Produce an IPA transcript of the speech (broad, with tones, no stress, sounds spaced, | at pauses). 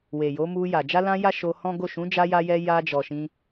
w e˨ j o˨˦ m u˧ j a˨ d͡ʒ a˧ l ã˧ j a˦ ʃ o˧ h ɔ̃˦ ɡ o˦˨ ʃ ũ˨˦ d͡ʒ a˧ j a˧ j ɛ˧ j a˧ d͡ʒ ɔ˨ ʃ ĩ˧